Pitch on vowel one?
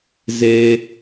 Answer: high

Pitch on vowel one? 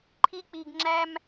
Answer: high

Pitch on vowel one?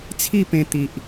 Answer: falling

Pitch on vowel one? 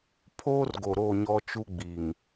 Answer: high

